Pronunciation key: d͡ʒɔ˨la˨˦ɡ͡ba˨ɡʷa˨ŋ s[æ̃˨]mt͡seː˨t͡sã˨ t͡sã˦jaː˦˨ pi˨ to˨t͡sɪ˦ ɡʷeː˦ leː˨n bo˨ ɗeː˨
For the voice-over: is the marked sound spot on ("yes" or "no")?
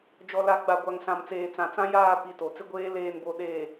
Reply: no